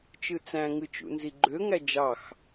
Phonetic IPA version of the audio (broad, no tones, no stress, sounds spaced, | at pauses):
t͡ʃ ɯ t͡s æ̃ ŋ ɯ t͡ʃ ṵ n z i ɡ͡ǃ ø ŋ æ d͡ʒ ɑ x